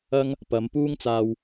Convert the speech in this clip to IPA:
ɐ˥ŋ | pɐ˨˧mpuː˥ŋt͡saː˧w

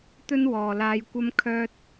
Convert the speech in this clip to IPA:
t̪ɵ˥nwɔː˨ laː˧jkʷɐ˥m kʰœː˥t̚

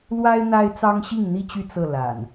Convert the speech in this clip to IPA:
lwa˦ɪ̯ n̪a˦ɪ̯t͡sɑ˦ŋ ɕi˥˨ŋn̪i˥˨t͡ɕy˥˨ t͡sɤ˥˨ la̰˨˩n

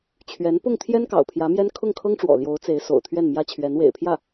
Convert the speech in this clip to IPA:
t͡ɕʰɥɛ˧˥n pʊ˥˩ŋt̪ʰjɛ˥n kɑ̰˨˩ʊ̯pʰjä˧˥mjɛ˥n kʰʊ˥˩ŋkʰɤ˥ŋʈ͡ʂwɔ̰˨˩ ljo˧˥ʊ̯t͡se˧˥ɪ̯ so̰˨˩ʊ̯ t̪ʰɥɛ˥˩nmjä˥t͡ɕʰɥɛ˧˥n wḛ˨˩ɪ̯pʰjä˥˩

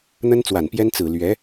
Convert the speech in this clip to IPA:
n̪ə˥nt͡swa˨˩npjɛ˥n t͡sɹ̩˨˩ lɥɛ˧˥

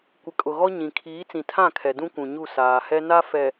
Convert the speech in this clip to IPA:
kʷɪ˨kʼʊ˨ɣɔ˦ ɲĩ˨ kʰiː˨˦t͡sĩ˨tʰã˦˨kʰɛ˨ dũ˦kʷũ˨ɲu˦˨ saː˨ hɛ˦ na˦fɛ˨

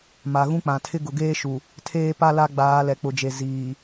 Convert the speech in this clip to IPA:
ma˨ɣũ˦k͡pã˨tʰɪ˦ ɡʊ˨ɡeː˦ ʃu˨ | tʰeː˦pa˦ la˦ɡ͡baː˨˦ lɛ˨k͡pʊ˨d͡ʒe˨ ziː˨

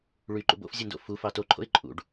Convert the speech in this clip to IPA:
ɭyǃṵ bo̰fzʲɯndo̰ fufɑ toǃʰo̰ɪ̯ ǃʼṵɖ

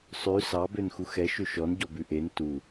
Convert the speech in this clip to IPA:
sˤʉ sɑbøn xuxɛ ʃøʃɔn ɟɔbʉʔen tu

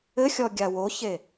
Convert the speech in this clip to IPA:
ɘxʲɔɡʲa woçe

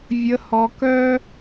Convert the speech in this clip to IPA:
vʲə˧hɔ˧kœ˦

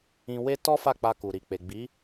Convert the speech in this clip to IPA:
ĩ˧we˦ tɔ˦fa˦˨k͡pa˧ ku˨ɾi˨ k͡pe˨ɡ͡bi˨˦

